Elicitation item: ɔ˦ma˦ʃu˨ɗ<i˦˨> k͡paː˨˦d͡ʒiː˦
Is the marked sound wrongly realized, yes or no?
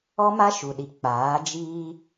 yes